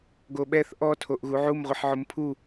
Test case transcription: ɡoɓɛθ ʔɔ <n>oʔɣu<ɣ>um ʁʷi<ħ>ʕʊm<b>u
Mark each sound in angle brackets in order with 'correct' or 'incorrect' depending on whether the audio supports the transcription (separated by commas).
incorrect, incorrect, correct, incorrect